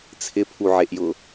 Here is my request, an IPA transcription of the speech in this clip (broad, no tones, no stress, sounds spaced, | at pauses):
t͡sʰ ɪ pʰ u ʕ e ʔ j ʊ